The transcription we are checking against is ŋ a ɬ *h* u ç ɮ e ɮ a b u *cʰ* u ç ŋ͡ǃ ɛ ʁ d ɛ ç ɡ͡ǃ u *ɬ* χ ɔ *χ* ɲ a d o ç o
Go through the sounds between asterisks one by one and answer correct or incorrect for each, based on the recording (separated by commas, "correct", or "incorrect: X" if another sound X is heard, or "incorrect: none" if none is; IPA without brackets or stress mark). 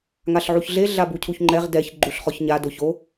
incorrect: ʕ, correct, correct, incorrect: ç